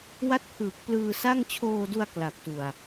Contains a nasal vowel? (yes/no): no